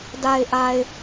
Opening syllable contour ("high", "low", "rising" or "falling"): low